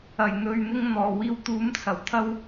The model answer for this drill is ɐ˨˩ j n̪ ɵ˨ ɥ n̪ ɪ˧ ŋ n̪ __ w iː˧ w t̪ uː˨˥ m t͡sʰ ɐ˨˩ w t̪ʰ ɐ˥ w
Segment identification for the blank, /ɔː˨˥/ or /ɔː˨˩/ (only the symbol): ɔː˨˩